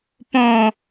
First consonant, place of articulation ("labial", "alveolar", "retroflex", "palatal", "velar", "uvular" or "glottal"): labial